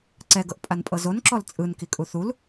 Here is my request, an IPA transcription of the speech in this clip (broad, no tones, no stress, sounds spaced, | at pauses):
ǀ ɛ ɡ ɤ ʔ pʼ a n pʼ ɤ z o n ǁ ɔ l t͡sʼ ɯ n k i kʼ u θ u l